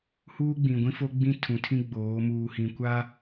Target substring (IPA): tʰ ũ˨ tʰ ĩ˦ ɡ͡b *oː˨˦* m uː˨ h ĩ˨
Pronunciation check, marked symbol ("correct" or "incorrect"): correct